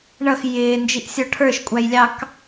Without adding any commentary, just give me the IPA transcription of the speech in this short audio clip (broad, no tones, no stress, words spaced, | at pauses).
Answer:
ɳʌx jɪː nd͡ʒiʔsʲɔʈʰə˞ʃ kʷʼæjlʲɑk